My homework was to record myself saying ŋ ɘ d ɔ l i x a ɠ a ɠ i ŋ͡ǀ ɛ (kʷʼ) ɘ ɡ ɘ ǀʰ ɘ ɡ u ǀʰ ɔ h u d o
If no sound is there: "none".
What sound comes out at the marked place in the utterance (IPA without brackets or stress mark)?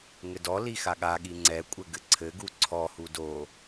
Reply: kʷʼ